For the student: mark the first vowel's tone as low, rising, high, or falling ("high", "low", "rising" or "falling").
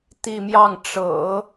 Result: falling